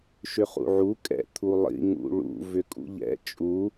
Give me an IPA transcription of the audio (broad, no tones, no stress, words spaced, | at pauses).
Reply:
ʃʏχṵʕu kʼɛ̰t̪ʰu lˠḭ ŋṵɭṵ vʏkʼṵʎɛ̰ t͡ʃʼu